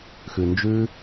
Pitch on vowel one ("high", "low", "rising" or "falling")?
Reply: low